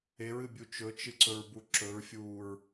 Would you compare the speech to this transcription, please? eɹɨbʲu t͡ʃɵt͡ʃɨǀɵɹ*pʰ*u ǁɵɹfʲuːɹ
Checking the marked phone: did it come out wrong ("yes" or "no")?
yes